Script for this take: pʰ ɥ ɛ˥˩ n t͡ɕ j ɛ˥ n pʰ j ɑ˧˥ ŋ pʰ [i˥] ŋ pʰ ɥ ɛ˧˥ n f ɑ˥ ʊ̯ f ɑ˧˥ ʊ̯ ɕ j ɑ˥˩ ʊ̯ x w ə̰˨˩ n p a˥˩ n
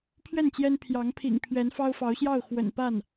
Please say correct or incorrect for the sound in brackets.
incorrect